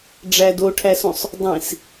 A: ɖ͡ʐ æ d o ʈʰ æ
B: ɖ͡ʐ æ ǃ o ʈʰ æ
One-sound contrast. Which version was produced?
A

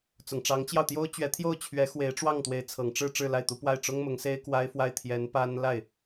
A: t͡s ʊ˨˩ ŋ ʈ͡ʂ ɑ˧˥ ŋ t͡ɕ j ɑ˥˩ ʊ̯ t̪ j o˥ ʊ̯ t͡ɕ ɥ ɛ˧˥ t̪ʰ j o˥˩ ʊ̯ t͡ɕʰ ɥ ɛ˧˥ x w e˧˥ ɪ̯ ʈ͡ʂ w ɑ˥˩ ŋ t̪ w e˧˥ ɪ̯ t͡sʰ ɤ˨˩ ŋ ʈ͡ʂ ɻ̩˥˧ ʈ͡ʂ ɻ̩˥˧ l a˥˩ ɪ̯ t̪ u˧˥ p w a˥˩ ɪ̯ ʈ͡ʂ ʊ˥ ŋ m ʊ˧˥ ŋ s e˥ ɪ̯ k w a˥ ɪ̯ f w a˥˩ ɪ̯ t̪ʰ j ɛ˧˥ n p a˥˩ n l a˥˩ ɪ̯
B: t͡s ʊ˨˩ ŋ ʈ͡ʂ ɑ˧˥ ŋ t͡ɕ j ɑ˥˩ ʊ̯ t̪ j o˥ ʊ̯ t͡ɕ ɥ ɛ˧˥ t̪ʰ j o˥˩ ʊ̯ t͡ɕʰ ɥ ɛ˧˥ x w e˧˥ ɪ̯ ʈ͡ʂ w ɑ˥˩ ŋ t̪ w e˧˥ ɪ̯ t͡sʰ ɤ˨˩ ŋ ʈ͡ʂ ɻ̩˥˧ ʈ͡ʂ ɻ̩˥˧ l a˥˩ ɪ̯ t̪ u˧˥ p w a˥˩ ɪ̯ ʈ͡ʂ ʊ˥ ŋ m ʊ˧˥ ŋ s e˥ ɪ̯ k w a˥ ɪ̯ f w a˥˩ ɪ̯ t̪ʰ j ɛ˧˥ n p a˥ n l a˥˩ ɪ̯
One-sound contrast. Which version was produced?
B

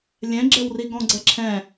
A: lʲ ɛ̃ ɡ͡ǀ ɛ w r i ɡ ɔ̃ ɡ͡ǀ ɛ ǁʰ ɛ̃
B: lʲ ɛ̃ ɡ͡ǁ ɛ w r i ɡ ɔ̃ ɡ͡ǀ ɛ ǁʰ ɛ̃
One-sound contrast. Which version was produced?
B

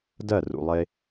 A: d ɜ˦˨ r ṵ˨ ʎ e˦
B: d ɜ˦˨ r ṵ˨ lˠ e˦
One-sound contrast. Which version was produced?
B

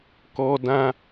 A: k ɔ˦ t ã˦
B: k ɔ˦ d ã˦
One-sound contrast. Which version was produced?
B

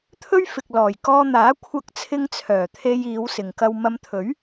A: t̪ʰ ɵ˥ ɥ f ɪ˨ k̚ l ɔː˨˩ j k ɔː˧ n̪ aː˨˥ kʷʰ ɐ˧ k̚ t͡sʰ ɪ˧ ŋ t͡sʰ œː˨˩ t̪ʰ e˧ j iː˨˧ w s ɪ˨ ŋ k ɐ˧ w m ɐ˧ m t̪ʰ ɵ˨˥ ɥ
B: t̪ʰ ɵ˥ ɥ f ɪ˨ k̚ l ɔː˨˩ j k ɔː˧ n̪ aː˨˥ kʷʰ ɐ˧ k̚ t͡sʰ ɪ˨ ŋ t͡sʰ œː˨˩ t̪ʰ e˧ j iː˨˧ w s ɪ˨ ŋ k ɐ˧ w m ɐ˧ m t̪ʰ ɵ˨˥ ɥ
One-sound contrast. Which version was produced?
A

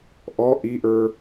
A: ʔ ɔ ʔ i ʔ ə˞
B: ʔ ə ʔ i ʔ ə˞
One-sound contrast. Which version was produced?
A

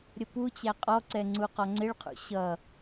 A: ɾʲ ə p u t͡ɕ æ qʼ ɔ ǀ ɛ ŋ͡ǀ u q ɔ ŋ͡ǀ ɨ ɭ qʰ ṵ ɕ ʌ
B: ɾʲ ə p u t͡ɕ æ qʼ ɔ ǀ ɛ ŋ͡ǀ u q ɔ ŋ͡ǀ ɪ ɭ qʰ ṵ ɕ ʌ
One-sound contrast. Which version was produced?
B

